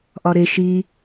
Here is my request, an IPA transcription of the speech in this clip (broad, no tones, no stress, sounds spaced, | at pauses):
ʔ ɒ ɾ e ʃ i